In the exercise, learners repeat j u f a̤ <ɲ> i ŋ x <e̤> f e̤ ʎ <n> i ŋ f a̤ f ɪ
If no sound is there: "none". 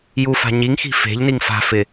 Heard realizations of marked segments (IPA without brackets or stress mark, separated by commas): ɲ, i̤, n